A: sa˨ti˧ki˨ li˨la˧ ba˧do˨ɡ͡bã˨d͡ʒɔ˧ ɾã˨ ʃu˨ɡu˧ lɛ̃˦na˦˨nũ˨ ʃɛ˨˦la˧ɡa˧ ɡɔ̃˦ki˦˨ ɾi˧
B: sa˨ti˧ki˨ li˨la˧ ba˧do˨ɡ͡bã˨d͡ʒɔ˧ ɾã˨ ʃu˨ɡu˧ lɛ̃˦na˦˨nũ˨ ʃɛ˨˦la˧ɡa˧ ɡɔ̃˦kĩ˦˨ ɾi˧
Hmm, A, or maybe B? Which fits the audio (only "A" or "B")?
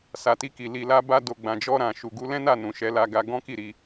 A